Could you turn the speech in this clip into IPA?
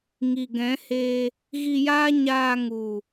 ŋi˨ɡɛ̃˨˦heː˧ | ɣi˧jaː˦ ɲaː˧ŋu˨

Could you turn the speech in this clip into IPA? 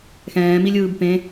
xɛ̃ːmilʲɯːb pẽ

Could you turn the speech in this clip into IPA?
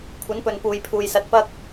kʷʰɐ˨˥npɵ˨n puː˨jpʰuː˨jsɐ˧t̚ pɐ˥k̚

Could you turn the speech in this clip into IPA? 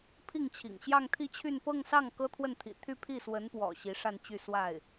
pʰi˥˩ŋt͡ɕʰḭ˨˩ŋ ɕjɑ˥˧ŋt̪ʰi˥˧t͡ɕʰy˥˧n pɤ˥˧ŋsɑ˥˩ŋ kɤ˥t̪ʰwə˥˩nt̪ʰḭ˨˩ t̪ʰy˥˧pʰi˥˩swə˧˥npwɔ̰˨˩ ɕi˧˥ʂa˥˧nt͡ɕy˥˧ swa˥˩ɪ̯

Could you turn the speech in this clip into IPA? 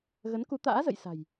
ɣə˨˦nku˨˦t̪a̰ː˧˥ zə̰˧˨jsa̤˨˩j

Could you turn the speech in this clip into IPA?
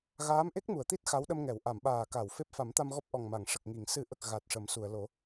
ɣaː˧˥mʔe˦˥k̚mu˨˩˨ə̯t̪i˦˥t̚ xa˧˥wɗə˧mŋɛ˨˩˨w ʔa˨˩˨mɓaː˨˩ ka˨˩˨w fe˦˥p̚fa˨˩˦mt̪a˧mɣɔ˦˥p̚ ʔɔ˨˩ŋma˨˩˨ŋ ʂə˨˩k̚ŋi˨˩˨ŋ sɨ˨˩˦ʔə˨˩k̚ ɣa˨˩t̚ʂə˨˩˦msu˨˩˨ə̯ lo˨˩˦

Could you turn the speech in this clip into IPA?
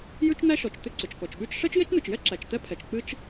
jʉ˥t͡ʃn̪æ˥ʃɔ˩t͡ʃ t̪ʏ˥ǀʏ˩t͡ʃkɔ˩t͡ʃɓʉ˥t͡ʃ ʂɛ˥t͡ʃje˥t͡ʃn̪ɨ˩t͡ʃjɛ˥ ǁæ˩t͡ʃt̪ɛ˥pʰɛ˩t͡ʃ k͡pɨ˥t͡ʃ

